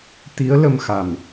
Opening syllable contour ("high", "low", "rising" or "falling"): rising